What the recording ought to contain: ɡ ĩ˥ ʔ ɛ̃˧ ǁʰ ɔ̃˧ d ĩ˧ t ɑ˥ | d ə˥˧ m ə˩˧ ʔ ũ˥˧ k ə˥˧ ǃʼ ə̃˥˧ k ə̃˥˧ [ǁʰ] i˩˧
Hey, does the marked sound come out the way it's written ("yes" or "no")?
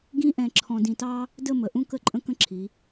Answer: yes